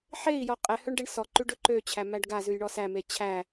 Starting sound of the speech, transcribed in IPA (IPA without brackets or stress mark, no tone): ħ